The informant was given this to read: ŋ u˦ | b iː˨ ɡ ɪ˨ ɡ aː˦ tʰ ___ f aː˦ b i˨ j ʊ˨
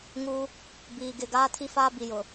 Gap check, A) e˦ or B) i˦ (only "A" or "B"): B